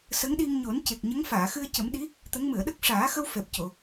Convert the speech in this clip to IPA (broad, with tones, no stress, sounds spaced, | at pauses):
s ə˧˥ ŋ ɗ i˧ ŋ ɲ o˨˩˦ n c e˨˩ k̚ ɲ ə˧˥ ŋ f aː˨˩˨ x ɨ˧ ə̯ c ə˨˩˦ m ɗ i˧˥ | t̪ ə˧˥ ŋ m ɨ˨˩˨ ə̯ ɗ ə˦˥ k̚ ʂ aː˨˩˦ x ə˧ w f ɛ˨˩ p̚ c o˨˩˨